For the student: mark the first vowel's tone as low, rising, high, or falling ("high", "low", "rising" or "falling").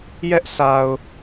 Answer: high